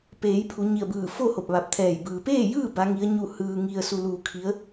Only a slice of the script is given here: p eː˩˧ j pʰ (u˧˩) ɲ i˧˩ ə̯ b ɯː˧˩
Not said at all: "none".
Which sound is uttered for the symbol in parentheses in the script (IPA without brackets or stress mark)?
u˩˧